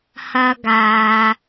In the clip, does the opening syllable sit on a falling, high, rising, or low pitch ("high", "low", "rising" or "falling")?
high